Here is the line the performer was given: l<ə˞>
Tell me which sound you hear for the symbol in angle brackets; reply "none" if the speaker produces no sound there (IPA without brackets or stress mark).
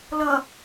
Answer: ʌ